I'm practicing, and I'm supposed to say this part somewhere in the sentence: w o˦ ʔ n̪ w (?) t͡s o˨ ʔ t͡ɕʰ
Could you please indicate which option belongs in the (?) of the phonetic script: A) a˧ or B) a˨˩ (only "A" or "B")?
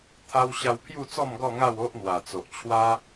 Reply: B